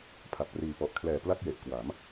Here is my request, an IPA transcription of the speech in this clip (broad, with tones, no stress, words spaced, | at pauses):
pʰa˨˩p̚riː˨˩pɔ˨˩ʔ kʰlɛː˨˩ pla˥˩k̚je˨˩ʔ kwa˩˦m